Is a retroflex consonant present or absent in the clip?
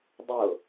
absent